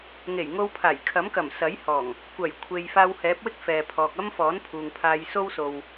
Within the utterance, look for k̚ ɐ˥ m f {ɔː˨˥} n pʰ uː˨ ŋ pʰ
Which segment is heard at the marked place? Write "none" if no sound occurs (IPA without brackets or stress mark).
ɔː˨˥